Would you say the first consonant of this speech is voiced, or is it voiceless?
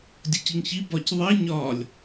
voiced